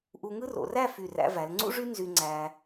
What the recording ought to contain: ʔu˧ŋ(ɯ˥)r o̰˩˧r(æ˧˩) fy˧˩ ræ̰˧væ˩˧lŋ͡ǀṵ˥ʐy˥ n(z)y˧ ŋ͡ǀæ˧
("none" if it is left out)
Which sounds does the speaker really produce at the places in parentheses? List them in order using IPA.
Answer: ɯ˥, æ˥˧, z

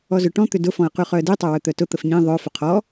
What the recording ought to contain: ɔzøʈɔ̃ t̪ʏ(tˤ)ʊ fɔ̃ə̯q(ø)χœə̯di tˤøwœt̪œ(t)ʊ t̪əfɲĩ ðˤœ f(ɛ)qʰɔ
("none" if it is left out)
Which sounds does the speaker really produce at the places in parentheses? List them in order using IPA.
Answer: d, y, t, ʏ

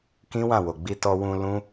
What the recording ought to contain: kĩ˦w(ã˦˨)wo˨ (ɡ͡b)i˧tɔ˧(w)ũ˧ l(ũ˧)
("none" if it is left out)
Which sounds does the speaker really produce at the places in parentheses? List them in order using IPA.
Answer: ã˦˨, ɡ͡b, w, ũ˦

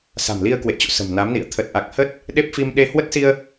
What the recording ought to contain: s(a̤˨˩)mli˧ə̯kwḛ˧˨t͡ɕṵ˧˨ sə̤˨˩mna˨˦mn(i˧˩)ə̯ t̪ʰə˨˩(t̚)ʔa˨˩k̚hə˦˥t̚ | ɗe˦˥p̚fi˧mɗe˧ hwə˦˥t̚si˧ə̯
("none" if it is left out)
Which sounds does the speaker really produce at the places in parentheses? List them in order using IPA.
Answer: a̤˨˩, ḭ˧˨, t̚

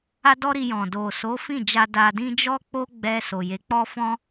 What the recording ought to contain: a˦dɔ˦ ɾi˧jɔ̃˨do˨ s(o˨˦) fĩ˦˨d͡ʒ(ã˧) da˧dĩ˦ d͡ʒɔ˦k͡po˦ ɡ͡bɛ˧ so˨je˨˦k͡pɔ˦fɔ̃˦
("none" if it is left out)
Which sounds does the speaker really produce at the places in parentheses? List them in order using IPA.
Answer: o˨˦, a˧

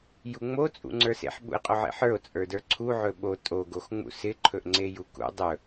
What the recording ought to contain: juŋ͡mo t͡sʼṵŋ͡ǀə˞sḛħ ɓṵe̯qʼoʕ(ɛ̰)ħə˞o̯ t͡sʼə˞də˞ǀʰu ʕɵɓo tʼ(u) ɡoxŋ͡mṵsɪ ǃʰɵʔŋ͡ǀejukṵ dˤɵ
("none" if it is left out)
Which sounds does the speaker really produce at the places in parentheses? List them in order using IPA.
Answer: ḛ, o

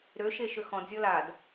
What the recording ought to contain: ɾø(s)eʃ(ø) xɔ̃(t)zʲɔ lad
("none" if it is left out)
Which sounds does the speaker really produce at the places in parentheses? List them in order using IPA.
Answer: ʃ, ø, d

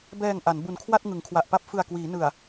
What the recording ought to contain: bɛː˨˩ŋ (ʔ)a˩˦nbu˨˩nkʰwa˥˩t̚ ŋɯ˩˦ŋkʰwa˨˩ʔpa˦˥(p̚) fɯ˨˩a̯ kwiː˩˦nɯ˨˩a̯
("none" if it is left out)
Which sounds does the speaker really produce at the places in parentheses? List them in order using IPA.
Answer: ʔ, p̚

